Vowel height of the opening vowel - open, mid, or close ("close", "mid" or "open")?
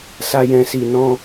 open